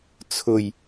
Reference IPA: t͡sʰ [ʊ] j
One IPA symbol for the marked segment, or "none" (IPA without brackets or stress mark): ʊ